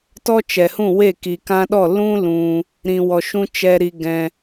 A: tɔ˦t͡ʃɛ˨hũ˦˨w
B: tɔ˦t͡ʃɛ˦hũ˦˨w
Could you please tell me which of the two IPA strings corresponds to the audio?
A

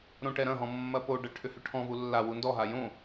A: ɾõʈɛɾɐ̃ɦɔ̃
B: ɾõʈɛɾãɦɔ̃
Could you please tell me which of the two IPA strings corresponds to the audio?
A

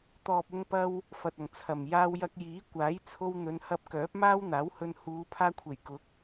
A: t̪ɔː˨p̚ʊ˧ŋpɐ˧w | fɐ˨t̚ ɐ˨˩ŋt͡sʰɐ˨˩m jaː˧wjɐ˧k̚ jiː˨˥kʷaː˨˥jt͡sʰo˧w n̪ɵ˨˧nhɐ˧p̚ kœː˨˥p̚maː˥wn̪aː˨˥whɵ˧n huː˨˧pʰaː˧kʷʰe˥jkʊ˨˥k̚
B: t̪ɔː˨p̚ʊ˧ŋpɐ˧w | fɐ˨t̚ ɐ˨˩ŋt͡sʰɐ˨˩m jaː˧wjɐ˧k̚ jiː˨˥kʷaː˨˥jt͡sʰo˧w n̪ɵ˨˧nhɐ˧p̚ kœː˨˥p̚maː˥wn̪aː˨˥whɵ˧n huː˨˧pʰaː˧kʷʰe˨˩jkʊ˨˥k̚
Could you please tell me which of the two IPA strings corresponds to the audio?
B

